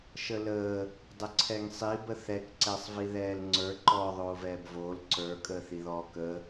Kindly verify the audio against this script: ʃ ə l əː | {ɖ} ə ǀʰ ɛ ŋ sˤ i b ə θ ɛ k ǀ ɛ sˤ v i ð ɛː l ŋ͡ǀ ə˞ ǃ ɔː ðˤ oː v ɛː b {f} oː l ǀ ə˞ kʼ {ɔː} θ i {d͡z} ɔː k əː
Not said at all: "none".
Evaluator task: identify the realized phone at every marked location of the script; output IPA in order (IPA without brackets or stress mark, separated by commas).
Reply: dˤ, v, əː, ð